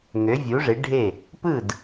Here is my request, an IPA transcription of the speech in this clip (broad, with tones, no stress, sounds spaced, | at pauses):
ŋ ø˩˥ vʲ u˩˥ ʐ e˩˥ ɖʱ e˥˩ | p ɯ˥˩ d